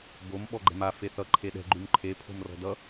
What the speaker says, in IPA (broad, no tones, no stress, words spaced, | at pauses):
bom ɓɔɡ͡ǃɛ̤ma feθʌ ǃʰeɗɛ̤ ɡ͡ǃʉmǃʰe pʰo̤mrɔ̤dʌ